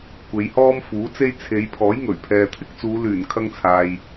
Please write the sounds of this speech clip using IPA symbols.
kʷe˨˧jhɔː˥mfuː˨˥t͡se˥j t͡sʰe˨˧jpʰɔː˨˥jŋɵ˨˩ɥ pʰɛː˨t̪ʰɪ˥k̚t͡suː˨˧ lyː˨˩nkʰɐ˧ŋt͡sʰaː˨j

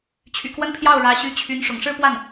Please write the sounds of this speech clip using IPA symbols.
t͡ɕʰy̰˨˩kwə˥n pʰjɑ˥˩ʊ̯ ɻä˧˥ ɕy˧˥t͡ɕʰy˧˥n ʂʊ̰˨˩ŋʂɻ̩˥˧pwa˥˩n

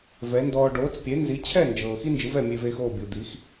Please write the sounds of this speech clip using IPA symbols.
vɛ˩˥ndɔː˧ ɖoː˩˥t͡spʲe˩˥ nzi˩˥t͡ɕʰɛ˥˩nd͡ʒɤː˩ xi˥nd͡ʒɯ˩˥vɛ˥˩ mʲe˧veː˧xoː˥˩ bʲu˩d̪i˩˥x

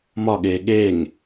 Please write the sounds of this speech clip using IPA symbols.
mɒɠeː ɠeŋ

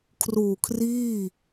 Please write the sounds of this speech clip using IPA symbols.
kʰruː˨˩kʰriː˥˩

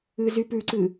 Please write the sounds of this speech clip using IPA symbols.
ɨzypʉǀɨ

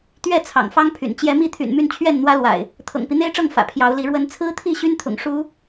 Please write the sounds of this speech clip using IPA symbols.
t̪ɥɛ˥˨ t͡sʰɑ̰˨˩ŋfɑ˦ŋpʰy̰˨˩n t͡ɕjɛ˨˦mi˥˨t̪ʰy̰˨˩n my˥˨nt͡ɕʰɥɛ˥˨nn̪wä˦lwa̰˨˩ɪ̯ | t̪ʰɤ̰˨˩ŋpi˦n̪e˦ɪ̯ʈ͡ʂɤ˥˨ŋ fä̰˨˩pʰjɑ˨˦ʊ̯li˨˦ ɻwə˨˦nt͡sʰɹ̩˦t̪ʰi˥˨ ɕy˦nt̪ʰʊ̰˨˩ŋ ʂu˦

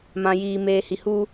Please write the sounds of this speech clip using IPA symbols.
mã˨jiː˨ meː˨hi˨huː˦

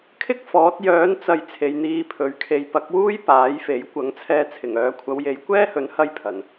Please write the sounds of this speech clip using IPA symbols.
kʰɪ˥k̚ fɔː˨˥t̚ jœː˨˥nt͡sɐ˨j t͡sʰe˨˧jn̪iː˧pʰɵ˨˧ɥkʰe˧j pɐ˨˥k̚wuː˥j paː˨˥jfe˨˥j kʷɐ˨˥ŋt͡sʰɛː˧t͡sʰɪ˨˩ŋœː˨˧ kʷʰɐ˨˧wje˨˧jkʷɛː˥hɵ˨˥n hɐ˥jpʰɐ˨˩n

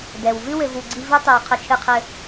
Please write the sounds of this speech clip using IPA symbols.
dɛ˩w vɨ˥wɘ˨vu˨ ɡ͡ǀi˦ vɨ˥tˤi˨w qʰɘ˦t͡ʃʰɨ˦qʰɘ˦

